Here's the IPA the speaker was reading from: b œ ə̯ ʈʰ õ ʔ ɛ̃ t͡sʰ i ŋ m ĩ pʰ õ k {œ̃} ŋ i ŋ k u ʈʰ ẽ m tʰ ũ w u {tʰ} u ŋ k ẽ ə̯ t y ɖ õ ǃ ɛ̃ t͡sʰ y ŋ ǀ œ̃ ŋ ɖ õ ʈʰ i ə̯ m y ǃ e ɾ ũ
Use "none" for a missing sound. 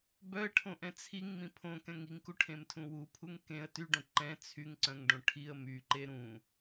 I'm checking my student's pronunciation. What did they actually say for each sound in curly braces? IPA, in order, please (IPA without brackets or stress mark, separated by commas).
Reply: ɛ̃, pʰ